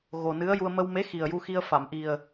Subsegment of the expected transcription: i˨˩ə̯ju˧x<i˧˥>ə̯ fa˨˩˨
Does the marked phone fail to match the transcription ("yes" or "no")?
yes